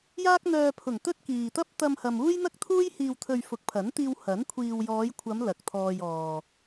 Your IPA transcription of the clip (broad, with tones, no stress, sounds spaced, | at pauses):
j aː˥ k̚ n̪ œː˧ pʰ ʊ˨˩ ŋ t̪ ɵ˥ t̚ k iː˨ t̪ ɐ˥ p̚ t̪ ɐ˧ m h ɐ˨ m uː˥ j n̪ ɐ˥ k̚ t̪ʰ uː˥ j h iː˨ w t̪ʰ ɵ˨ ɥ f ʊ˨˥ k̚ pʰ ɐ˨˥ n t̪ iː˧ w h ɐ˨˥ n kʷʰ iː˨ w j ɔː˨˧ j kʷʰ ɐ˨˧ m l ɐ˨ k̚ t̪ʰ ɔː˧ j ɔː˨